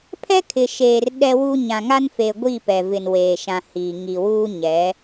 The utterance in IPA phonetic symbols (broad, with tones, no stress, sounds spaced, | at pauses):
pʰ ɛ˦ kʰ ɪ˨ ʃ eː˨ r ɗ ɛ˦ w u˦ ɲ ã˨ ŋ a˦ n f e˨ ɡʷ i˦˨ p ɛ˨ v ɪ˨ n w eː˨ ʃ ã˨ h iː˨ ŋ i˨ w uː˦ ɲ ɛ˨˦